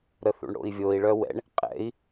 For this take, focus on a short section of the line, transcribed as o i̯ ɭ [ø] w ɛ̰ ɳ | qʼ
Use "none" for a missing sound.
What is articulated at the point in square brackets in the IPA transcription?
œ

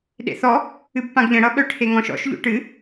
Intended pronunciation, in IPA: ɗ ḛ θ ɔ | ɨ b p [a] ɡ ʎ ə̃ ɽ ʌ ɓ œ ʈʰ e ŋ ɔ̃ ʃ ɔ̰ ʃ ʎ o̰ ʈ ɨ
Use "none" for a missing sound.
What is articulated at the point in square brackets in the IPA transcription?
ã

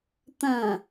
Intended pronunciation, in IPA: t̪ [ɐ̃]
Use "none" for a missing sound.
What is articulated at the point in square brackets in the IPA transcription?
ɐ̃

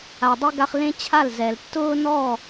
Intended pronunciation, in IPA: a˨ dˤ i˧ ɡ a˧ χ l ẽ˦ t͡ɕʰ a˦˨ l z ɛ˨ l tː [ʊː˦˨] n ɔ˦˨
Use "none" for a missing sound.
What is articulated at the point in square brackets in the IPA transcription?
ʊː˦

